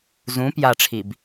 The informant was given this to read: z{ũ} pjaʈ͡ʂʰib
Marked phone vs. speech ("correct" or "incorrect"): correct